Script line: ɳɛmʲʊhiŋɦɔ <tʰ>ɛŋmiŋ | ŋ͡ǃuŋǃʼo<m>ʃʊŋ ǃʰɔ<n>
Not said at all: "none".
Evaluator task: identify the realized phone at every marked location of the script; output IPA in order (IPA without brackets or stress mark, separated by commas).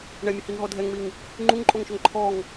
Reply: dʱ, ŋ, ŋ